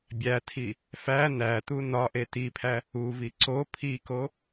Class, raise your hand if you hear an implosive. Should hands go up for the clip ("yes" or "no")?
no